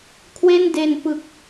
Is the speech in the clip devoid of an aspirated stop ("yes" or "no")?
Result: no